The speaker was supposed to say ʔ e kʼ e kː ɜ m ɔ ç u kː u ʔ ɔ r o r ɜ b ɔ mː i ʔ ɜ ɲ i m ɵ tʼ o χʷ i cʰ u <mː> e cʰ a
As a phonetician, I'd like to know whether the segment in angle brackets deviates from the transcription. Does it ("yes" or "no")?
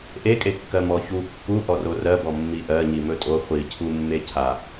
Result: no